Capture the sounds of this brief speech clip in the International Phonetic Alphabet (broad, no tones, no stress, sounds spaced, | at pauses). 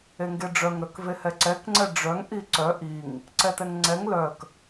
e ŋ ɡ e ɖ͡ʐ œ ŋ ɾ œ k v e h ɛ ǀ ɛ k ŋ͡ǀ ɛ ɖ͡ʐ œ ŋ ʔ i ǀ œ ʔ i ŋ | ǀ ɛ t ɛ ŋ ŋ͡ǀ ɛ ŋ l œ k